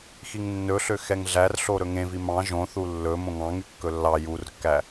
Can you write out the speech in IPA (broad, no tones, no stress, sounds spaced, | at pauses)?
x i ŋ nː ɵ ɬ ø x ɛ ŋ ɮ æ r ɬ o ɾ ɵ ŋ ẽ v i m ɑ̃ ʒ õ θ u lː ɵ m õ ŋ ɑ̃ ŋ y kː ɵ lː ɑ j u r kː æ